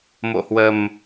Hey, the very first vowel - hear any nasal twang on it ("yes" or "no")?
no